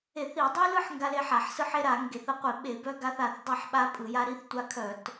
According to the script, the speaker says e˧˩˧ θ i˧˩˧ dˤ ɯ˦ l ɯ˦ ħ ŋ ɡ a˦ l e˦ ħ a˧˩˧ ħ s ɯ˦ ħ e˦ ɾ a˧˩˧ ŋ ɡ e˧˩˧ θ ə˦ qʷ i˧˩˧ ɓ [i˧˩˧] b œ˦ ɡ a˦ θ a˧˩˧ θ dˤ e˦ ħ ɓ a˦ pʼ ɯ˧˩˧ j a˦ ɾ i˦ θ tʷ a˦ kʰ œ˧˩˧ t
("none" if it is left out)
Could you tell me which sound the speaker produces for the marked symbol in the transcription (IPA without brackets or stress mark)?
e˧˩˧